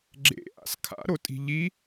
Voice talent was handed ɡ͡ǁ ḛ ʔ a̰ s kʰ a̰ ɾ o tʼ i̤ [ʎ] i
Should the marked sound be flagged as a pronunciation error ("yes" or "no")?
no